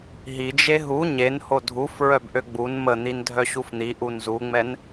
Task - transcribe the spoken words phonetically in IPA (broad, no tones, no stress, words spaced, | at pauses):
ɦid͡ʒe ɦu ɲen hodʱuf ɹœbʔøɡ͡bun mən̪in dʱœɕufn̪i ʔunzuŋ͡mɛn